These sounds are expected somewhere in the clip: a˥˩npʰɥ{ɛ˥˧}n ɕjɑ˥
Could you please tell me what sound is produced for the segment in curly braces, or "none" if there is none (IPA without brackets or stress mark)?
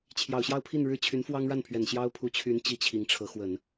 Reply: ɛ˨˩